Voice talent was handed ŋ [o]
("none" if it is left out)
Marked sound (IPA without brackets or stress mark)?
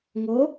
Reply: o